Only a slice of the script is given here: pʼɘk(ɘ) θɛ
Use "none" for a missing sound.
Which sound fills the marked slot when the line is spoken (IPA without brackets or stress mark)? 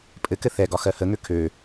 ɘ